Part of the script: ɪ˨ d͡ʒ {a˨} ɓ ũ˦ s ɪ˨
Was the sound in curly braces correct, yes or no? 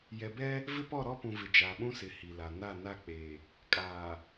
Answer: no